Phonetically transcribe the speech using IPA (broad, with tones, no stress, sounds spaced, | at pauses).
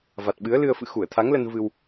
v a˨˩ t̚ ɓ ɨ˨˦ ə̯ l ɨ˧ ə̯ f ɨ̰˧˨ x u˧˩ ə̯ t̪ʰ a˨˦ ŋ l ə˧ n v ɨ˧ w